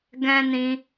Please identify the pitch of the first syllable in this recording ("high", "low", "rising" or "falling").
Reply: high